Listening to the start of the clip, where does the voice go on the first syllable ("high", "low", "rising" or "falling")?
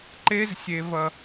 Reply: high